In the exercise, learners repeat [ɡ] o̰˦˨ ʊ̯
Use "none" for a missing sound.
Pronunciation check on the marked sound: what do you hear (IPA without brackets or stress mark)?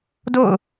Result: d